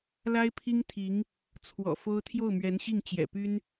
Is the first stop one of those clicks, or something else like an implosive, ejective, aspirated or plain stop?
aspirated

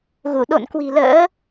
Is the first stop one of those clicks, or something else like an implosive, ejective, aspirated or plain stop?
implosive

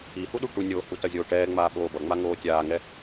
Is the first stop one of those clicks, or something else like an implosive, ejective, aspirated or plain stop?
implosive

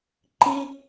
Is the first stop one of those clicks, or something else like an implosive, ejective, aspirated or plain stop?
click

